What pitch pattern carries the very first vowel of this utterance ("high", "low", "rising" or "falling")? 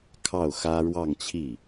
falling